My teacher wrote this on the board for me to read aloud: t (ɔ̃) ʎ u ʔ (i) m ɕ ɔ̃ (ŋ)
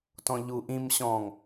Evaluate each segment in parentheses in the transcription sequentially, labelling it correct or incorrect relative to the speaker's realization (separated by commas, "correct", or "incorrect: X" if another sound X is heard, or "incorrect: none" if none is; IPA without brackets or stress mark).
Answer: correct, incorrect: ĩ, correct